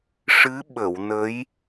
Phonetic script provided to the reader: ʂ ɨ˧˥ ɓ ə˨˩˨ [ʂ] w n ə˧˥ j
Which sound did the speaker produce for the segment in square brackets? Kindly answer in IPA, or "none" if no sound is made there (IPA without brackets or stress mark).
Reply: none